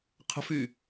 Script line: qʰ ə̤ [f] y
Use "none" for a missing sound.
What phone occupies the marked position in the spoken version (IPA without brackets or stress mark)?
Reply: f